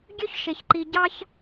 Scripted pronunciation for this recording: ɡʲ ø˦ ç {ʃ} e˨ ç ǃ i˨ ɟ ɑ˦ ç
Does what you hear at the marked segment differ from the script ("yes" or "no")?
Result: no